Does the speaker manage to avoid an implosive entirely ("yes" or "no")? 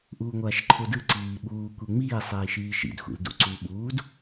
no